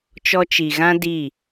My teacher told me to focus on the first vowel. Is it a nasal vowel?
no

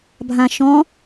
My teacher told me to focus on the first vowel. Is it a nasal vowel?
yes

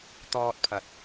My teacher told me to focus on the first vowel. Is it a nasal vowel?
no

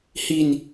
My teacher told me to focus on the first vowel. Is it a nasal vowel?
no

